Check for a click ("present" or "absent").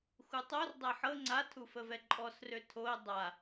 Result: present